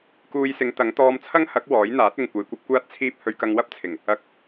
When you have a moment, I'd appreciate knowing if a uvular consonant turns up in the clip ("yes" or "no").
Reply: no